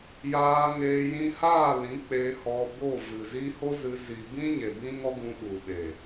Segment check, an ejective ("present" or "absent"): absent